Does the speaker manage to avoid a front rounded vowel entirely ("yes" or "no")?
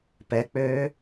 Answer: no